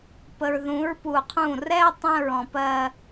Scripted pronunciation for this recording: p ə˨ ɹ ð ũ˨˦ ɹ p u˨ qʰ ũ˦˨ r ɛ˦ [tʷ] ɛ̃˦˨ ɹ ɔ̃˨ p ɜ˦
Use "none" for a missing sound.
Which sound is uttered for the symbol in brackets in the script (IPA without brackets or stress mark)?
tˤ